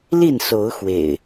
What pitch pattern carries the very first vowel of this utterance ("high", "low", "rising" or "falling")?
falling